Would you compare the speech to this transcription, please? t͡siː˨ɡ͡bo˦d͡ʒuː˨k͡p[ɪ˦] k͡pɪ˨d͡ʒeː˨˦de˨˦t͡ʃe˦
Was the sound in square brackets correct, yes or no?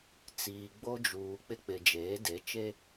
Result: yes